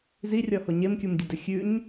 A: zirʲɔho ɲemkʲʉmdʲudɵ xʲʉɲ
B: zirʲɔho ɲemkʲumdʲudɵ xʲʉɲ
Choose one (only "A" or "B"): B